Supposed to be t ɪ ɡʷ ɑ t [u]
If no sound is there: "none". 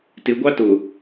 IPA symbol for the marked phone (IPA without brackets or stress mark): ʊ